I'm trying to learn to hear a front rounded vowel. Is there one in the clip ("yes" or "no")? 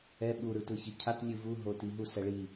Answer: no